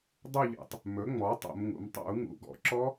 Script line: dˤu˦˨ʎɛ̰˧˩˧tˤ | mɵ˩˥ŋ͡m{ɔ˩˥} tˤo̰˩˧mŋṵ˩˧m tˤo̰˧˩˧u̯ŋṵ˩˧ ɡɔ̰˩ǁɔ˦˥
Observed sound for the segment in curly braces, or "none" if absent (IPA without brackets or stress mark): ɔ˩˥